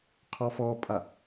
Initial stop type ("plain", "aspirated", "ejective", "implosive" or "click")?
aspirated